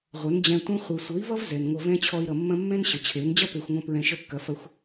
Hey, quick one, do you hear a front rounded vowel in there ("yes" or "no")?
no